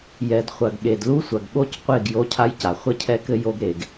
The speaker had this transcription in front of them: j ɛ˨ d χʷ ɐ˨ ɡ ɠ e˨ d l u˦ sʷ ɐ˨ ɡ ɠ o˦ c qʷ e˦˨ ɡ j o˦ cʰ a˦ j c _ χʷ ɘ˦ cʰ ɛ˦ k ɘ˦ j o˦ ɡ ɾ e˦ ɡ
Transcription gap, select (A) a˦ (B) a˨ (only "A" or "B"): B